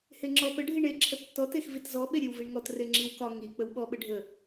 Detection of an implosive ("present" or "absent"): present